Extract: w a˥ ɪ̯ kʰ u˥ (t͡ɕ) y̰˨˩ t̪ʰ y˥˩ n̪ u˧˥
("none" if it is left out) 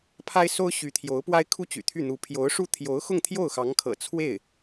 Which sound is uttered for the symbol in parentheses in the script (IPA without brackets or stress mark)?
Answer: t͡ɕ